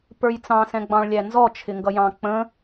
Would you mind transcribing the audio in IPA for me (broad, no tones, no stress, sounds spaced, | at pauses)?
p ə˞ j t͡s ɑ̃ s ɛ̃ ɡ͡b ɑ̃ ɭ lʲ æ n z ɔ t͡ʃʰ ɪ ŋ ɡ ʌ j ɑ̃ k͡p ə̃